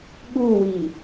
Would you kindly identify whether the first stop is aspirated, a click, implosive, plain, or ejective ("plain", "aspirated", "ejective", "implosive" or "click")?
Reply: implosive